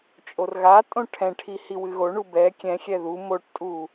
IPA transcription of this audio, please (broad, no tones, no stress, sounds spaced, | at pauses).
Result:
t͡ʃʼ o r ɣ a tʼ õ ʈʰ ɛ̃ ʈʰ i h i w ɨ ɣ o ɳ u b ɛ kʲ ɛ̃ xʲ ɛ ð u m o ʈ tʼ u